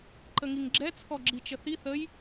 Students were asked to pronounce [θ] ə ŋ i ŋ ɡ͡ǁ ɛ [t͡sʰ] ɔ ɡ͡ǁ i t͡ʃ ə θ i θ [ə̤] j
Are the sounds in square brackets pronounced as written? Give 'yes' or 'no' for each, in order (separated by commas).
no, yes, no